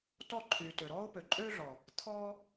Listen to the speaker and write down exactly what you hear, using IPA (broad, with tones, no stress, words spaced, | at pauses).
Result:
tɔ˦˨ǃʰyː˨tø˨ ɾɔː˦ʊ̯pø˨ǃʼøː˦ɮɔ˨ | t̪ʰɔː˦